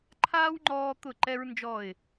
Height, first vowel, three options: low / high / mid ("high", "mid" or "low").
low